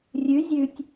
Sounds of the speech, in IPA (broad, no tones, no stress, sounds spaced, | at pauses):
rʲ ʉ zʲ ʉ tʲ